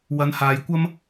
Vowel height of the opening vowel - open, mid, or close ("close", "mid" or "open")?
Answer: open